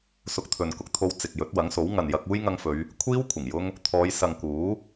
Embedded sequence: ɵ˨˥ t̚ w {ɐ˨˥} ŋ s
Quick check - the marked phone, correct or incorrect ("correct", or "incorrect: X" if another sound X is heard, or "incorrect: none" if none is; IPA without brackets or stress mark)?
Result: correct